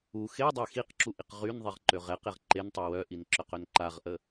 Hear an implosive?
no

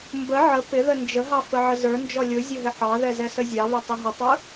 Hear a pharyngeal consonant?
yes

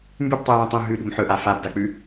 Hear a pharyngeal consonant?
yes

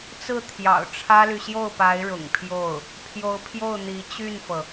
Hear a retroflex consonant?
yes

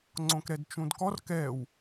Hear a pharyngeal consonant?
no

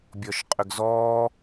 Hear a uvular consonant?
yes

